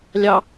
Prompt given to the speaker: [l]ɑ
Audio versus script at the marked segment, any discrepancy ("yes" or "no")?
yes